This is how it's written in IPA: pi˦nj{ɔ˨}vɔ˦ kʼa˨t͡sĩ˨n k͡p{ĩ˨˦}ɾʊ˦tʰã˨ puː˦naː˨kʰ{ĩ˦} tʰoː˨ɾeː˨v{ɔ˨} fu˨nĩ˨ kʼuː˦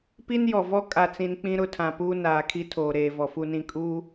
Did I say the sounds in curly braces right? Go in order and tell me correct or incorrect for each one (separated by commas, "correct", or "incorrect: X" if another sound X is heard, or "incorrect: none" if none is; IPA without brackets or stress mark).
correct, incorrect: ĩ˦, incorrect: i˦, correct